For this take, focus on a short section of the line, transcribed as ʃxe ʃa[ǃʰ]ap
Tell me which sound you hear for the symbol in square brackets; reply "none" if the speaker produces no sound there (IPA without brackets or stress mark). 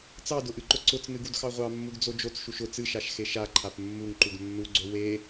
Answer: ǃʰ